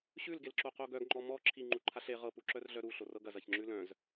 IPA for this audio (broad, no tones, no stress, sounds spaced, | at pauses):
ɕ ʉ l ɡ e l ǁ o q o ɡ œ ɡ ŋ͡ǃ ɔ m ɔ ǁʰ i ŋ͡ǃ u ǃʰ a ɬ e ʁ ɤ p u ǁ œ r ɮ œ ɾ u ɬ o r ɤ ɡ ɐ z ɐ ç ŋ͡ǁ ʉ l œ̃ z